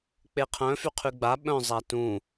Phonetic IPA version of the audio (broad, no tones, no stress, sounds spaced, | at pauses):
k͡p e qʰ œ̃ f y qʰ y ɡ͡b a ɓ œ̃ zˤ a t ũ